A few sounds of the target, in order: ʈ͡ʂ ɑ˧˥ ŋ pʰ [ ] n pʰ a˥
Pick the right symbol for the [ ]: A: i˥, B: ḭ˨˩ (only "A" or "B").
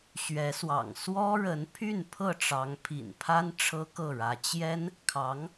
B